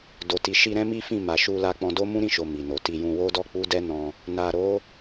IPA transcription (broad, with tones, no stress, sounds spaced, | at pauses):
d o˨ t i˨ ʃ i˧ ɾ ɛ̃˦ m i˦ f ĩ˦˨ m a˨ ʃ u˧ l a˧ k͡p ɔ̃˧ d o˦ m ũ˦ ɾ ĩ˦˨ ʃ o˨ m i˨ n o˨ t i˧ j ũ˧ w o˦ d ɔ˦ k͡p u˦ d ɛ˦ n ɔ̃˦ | n a˨ ɾ o˨˦